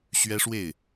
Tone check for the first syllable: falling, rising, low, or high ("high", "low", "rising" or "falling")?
high